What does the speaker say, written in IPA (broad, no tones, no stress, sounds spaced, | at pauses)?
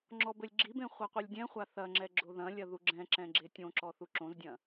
ŋ͡ǁ ɔ b ɘ lʲ ɡ͡ǁ i b ẽ χʷ a qʷ i lʲ dʲ ɛ̃ χʷ a θ ɐ ŋ͡ǁ ɛ ɡ͡ǁ o ð ɐ̃ lʲ ɐ ð u ɡ͡ǁ ɛ̃ ǁ ɛ̃ ɡ͡ǁ e tʲ õ ǁ ɔ θ u ǁ õ z dʲ ɐ̃